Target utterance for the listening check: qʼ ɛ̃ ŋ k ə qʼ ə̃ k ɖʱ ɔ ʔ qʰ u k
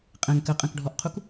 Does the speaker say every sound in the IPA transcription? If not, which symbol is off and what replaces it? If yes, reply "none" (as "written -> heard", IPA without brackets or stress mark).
none